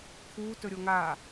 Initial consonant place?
velar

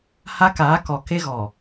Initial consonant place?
glottal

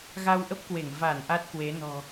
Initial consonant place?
velar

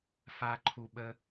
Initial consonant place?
labial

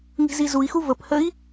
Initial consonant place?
velar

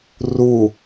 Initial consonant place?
alveolar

